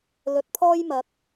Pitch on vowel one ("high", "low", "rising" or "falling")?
rising